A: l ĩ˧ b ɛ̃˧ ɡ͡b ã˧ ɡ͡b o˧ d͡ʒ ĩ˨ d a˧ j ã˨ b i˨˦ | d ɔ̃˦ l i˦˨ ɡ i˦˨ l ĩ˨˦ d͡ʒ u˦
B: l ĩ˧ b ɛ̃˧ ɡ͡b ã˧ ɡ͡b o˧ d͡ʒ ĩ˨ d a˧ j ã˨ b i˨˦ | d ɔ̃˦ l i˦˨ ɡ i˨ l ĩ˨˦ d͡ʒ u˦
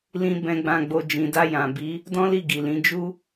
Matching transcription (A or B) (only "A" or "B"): B